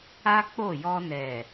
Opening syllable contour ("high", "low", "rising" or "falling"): high